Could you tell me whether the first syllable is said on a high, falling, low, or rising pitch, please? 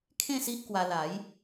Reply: falling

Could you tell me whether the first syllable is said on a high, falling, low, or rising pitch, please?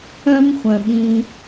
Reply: high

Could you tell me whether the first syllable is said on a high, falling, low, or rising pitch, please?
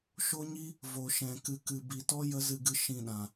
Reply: high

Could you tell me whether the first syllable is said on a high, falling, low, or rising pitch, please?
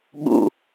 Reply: low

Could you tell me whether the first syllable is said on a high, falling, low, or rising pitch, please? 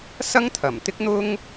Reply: high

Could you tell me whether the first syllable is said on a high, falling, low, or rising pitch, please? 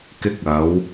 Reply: high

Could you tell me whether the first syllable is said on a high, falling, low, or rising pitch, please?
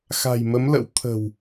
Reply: low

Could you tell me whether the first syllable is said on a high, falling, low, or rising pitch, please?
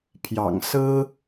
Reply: low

